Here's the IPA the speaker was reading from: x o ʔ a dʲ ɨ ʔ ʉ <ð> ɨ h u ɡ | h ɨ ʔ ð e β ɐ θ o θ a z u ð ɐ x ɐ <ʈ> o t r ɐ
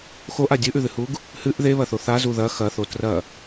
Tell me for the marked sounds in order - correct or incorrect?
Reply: correct, incorrect: θ

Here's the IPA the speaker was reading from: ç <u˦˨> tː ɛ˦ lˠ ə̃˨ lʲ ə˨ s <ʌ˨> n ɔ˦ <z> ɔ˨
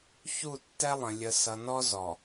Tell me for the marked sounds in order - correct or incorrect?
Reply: correct, correct, correct

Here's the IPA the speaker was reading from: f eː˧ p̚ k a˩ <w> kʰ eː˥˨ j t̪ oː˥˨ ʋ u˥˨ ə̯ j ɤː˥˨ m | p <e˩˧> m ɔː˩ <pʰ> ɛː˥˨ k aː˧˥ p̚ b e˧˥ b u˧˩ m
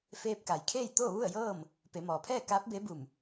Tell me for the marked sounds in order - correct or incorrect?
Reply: incorrect: j, correct, correct

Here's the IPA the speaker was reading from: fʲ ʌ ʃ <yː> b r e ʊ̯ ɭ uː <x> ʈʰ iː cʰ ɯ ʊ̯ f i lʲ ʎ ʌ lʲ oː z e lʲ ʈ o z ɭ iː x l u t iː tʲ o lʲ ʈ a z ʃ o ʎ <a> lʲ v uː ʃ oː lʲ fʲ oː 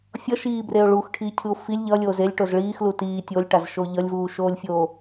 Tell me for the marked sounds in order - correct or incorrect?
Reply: incorrect: iː, correct, incorrect: ʌ

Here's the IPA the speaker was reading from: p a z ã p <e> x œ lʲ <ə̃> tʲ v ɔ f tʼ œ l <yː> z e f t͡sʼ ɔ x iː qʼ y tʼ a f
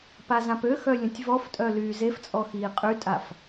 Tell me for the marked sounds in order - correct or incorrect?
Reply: incorrect: ø, correct, correct

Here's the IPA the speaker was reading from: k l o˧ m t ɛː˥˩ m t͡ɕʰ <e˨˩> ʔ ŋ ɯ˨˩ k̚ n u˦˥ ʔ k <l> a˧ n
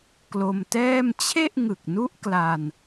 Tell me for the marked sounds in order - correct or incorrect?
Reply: incorrect: e˥˩, correct

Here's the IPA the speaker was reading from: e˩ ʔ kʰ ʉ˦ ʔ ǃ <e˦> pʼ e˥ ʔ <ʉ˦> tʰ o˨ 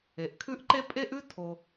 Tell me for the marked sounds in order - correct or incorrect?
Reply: correct, incorrect: ʉ˥

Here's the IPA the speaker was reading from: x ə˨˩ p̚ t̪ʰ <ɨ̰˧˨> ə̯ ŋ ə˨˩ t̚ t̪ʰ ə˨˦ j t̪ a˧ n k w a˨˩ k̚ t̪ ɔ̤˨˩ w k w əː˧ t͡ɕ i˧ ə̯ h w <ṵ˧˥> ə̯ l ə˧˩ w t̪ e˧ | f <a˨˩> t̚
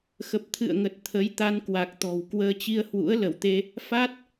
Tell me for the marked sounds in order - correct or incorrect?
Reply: correct, correct, incorrect: a˦˥

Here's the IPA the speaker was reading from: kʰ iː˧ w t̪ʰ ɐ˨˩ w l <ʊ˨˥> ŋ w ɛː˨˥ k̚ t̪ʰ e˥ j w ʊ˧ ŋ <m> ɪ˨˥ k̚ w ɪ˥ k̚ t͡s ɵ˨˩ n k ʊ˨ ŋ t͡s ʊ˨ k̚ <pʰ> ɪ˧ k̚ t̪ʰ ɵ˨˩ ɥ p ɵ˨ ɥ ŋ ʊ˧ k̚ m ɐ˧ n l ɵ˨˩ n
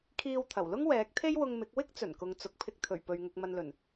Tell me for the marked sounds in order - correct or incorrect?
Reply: incorrect: ʊ˥, correct, correct

